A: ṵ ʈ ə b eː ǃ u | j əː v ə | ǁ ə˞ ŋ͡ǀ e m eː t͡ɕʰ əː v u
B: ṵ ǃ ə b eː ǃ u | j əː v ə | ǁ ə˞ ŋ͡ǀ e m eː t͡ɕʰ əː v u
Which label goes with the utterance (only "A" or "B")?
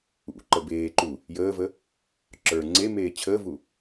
B